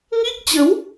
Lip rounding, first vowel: unrounded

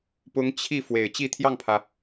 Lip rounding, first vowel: rounded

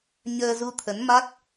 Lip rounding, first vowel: unrounded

